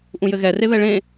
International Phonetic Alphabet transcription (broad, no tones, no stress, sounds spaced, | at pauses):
ʔ ũ j ɘ ɣ ɛ r e β ɛ ɭ ẽ